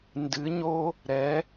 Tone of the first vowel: rising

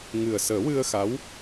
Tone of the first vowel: low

